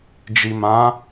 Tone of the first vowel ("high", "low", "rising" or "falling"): low